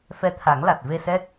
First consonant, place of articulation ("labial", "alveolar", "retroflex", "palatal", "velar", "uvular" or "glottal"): labial